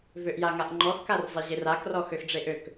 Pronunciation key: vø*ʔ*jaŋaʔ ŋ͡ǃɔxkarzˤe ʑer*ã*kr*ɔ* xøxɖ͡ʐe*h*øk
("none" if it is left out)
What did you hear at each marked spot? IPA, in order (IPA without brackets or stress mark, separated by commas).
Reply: ʔ, a, ɔ, ʔ